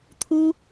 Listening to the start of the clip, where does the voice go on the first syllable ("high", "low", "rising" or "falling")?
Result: high